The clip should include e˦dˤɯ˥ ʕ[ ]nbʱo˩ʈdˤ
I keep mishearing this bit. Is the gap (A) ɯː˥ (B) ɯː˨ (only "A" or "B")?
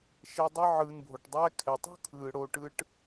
B